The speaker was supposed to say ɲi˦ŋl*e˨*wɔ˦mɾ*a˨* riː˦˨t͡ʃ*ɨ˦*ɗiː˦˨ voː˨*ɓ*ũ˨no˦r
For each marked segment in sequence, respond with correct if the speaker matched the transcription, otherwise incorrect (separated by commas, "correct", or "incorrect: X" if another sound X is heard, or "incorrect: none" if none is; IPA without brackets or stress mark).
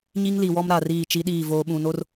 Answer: incorrect: i˨, correct, incorrect: i˦, correct